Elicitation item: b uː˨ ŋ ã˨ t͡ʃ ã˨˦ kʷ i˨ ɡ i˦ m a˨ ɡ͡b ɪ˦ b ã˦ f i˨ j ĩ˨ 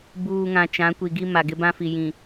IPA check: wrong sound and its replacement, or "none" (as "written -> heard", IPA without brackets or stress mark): ɡ͡b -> ɡ